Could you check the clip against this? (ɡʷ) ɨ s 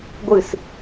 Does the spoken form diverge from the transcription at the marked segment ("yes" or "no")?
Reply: no